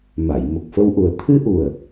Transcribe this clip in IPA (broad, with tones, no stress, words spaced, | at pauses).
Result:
ma˨˩˨j mə˨˩k̚fə˧wʔu˨˩ə̯ t̪ʰɨ˧ʔu˨˩ə̯